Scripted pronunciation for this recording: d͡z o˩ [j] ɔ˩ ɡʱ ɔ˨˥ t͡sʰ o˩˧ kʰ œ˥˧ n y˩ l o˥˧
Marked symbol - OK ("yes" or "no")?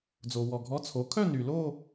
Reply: no